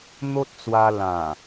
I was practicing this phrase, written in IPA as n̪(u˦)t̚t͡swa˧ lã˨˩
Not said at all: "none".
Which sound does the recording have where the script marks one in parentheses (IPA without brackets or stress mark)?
o˦